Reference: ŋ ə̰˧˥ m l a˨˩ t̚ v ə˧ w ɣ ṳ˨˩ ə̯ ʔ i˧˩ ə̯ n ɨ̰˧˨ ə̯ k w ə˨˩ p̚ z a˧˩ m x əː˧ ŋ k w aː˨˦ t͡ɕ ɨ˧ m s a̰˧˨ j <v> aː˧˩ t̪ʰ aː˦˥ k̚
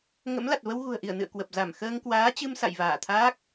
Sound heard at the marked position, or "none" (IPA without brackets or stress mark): v